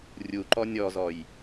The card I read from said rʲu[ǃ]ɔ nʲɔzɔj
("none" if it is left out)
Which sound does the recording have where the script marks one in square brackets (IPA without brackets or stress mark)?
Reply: ǃ